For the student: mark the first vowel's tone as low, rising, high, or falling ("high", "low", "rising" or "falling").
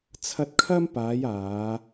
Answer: high